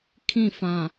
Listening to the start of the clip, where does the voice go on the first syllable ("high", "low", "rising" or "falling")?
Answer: falling